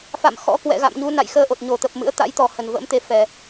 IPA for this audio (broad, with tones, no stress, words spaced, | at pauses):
fa̰˧˨m xɔ̰˧˥kwɛ̰˧˨ɣa̰˧˨mɲu˨˦ na̰˧˨jxəː˧ʔo˨˩t̚ɲo˧˩ t̪ə˨˩p̚mɨ̰˧˥ə̯ t̪a̰˧˥jt̪ɔ˨˩ hə˧˩nvə̰˧˥mt̪e˨˦ fɛ˨˩